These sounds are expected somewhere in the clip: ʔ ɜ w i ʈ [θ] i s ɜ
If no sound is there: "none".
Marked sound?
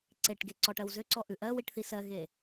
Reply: θ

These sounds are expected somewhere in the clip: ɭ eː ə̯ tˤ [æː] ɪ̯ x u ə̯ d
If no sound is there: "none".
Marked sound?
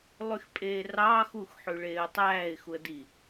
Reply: æː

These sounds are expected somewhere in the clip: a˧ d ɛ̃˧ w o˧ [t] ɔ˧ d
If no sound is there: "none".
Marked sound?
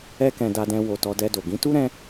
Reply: t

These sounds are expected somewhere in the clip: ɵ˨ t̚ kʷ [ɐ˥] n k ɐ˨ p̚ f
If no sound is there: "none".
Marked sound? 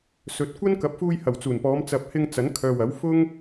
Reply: ɐ˥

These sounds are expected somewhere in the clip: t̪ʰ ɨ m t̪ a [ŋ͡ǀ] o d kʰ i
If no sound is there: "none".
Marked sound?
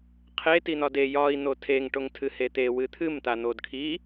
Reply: n̪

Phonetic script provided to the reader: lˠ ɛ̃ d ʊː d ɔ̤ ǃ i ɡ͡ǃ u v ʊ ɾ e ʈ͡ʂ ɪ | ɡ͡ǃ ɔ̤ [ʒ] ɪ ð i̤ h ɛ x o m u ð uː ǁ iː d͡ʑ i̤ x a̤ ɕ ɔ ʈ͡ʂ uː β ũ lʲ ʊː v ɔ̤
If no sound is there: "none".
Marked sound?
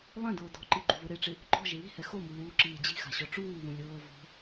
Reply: ʒ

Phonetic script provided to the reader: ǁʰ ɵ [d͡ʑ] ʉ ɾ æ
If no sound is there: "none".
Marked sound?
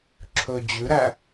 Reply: d͡ʑ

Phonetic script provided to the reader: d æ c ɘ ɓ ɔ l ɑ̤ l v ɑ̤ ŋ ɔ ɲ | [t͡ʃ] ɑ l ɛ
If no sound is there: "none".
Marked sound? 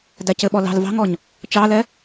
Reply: t͡ʃ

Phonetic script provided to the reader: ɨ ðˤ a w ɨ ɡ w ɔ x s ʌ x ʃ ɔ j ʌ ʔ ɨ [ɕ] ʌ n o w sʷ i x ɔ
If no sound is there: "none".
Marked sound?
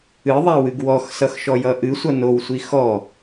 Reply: sʷ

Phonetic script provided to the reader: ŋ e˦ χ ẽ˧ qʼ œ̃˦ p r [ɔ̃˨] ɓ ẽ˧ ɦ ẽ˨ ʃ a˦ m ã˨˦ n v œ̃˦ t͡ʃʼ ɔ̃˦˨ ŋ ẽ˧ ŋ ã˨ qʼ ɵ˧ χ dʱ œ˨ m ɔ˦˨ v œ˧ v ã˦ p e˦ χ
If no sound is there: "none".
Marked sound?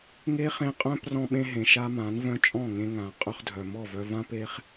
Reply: ɔ̃˧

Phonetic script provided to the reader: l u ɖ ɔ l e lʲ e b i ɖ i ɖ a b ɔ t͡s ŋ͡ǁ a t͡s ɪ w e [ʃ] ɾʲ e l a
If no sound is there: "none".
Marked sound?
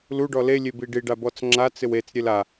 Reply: t͡s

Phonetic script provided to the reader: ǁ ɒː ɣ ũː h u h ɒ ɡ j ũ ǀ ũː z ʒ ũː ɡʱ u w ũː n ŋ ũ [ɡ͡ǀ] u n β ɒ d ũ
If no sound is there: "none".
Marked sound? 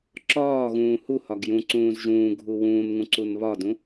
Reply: ǀ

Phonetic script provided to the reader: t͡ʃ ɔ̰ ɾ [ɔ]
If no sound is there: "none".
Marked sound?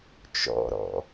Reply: ɔ̰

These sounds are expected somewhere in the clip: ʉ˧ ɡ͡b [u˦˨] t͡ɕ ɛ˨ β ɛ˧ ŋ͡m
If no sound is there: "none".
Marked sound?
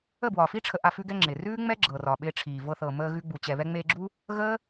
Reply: u˨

